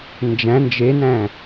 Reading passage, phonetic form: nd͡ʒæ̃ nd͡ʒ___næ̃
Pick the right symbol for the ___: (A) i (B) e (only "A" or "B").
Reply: B